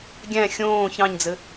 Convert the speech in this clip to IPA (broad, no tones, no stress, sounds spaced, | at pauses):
ɡʲ æ̃ xʲ õː ç ɑ̃ ɲ d͡z ɘ